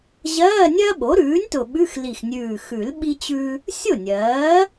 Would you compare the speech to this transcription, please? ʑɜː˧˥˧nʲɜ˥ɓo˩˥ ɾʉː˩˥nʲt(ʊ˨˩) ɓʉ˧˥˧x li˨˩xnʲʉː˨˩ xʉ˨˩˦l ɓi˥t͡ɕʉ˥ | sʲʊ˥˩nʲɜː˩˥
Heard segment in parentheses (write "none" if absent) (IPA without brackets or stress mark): ʊ˨˩